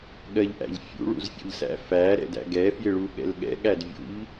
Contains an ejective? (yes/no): no